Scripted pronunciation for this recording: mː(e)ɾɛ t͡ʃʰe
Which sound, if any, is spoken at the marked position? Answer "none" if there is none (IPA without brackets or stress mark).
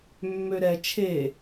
ø